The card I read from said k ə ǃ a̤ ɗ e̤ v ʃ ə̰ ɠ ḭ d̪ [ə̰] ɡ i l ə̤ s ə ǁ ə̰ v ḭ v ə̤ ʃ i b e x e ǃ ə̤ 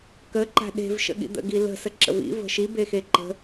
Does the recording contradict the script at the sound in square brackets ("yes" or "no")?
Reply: no